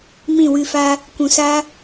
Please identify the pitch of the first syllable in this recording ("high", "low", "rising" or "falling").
falling